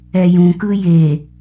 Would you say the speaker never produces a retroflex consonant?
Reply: yes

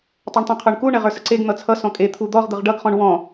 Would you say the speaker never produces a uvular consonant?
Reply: no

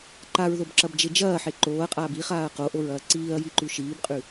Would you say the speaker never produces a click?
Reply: no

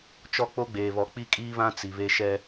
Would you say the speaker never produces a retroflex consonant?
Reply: yes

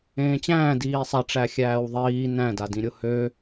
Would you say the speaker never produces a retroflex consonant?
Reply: no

